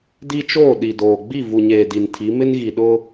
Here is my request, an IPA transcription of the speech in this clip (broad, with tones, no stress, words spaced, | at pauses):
di˦t͡ʃoː˦˨ɗi˨doː˨ ɡ͡bi˦˨vu˨ɲeː˨ di˨ntʰi˨˦ mɪ˦nɣi˨ ɗʊ˦